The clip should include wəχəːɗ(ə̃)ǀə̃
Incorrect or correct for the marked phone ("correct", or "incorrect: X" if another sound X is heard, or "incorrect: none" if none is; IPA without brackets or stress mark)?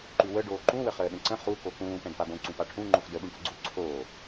correct